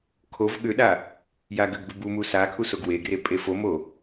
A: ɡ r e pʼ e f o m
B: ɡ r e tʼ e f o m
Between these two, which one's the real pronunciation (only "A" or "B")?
A